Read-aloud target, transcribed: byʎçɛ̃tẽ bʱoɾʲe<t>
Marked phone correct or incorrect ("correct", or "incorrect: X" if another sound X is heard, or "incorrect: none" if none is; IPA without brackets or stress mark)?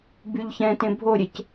incorrect: c